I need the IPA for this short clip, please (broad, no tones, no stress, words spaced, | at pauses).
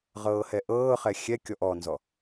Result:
ʁɤːhɛʔɤːχɛ xʲɛkʲɔʔ ɔnzɔ